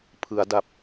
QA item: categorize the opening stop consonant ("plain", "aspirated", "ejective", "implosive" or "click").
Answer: aspirated